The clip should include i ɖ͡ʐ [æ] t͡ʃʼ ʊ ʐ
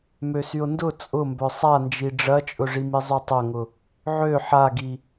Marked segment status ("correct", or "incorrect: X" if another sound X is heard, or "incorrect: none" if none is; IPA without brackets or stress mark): incorrect: ɐ